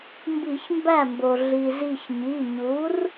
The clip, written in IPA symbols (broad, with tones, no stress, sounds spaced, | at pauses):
m b i˧˩˧ ç m b æ˥˩ m b o˩ ɮ i˩ z i˧˩ ç ɲ i˩˧˩ ɲ u˩˥ r